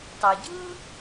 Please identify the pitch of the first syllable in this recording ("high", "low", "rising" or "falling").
low